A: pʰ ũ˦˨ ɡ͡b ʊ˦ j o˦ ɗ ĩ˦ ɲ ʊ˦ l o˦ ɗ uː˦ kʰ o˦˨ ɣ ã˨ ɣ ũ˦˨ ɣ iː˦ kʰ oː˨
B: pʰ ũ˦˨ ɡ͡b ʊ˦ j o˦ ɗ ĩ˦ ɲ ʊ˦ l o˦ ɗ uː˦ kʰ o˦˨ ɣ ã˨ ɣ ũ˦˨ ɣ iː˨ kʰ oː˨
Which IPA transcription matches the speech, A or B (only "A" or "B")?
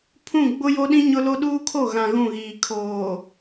B